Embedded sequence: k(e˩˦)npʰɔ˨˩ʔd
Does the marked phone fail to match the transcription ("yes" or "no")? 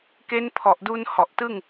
yes